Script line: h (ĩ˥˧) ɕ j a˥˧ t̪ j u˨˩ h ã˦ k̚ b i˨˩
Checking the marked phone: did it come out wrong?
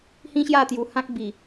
yes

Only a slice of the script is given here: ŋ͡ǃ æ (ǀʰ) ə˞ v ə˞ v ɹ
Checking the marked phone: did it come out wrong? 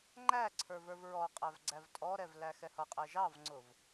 no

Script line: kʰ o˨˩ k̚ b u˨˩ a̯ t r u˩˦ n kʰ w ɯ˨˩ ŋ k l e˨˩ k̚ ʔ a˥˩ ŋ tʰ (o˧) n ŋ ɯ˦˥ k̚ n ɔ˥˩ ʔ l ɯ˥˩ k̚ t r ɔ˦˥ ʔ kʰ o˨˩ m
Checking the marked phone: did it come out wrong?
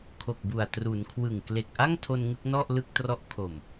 no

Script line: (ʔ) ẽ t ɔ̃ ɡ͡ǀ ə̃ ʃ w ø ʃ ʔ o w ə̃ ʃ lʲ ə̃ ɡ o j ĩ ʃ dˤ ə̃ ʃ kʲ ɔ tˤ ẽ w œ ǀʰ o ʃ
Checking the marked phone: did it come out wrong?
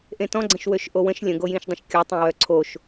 no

